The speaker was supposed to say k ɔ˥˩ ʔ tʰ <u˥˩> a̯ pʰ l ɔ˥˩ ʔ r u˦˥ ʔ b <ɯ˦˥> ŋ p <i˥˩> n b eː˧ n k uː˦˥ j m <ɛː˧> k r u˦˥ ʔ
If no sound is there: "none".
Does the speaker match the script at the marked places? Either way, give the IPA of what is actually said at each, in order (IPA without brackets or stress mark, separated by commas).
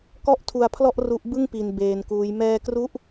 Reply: u˧, ɯ˥˩, i˧, ɛː˧